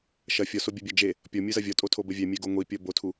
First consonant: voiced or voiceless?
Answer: voiceless